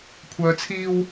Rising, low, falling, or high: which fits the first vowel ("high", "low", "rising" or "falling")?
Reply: low